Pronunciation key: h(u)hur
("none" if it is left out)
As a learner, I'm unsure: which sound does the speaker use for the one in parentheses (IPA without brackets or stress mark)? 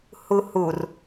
u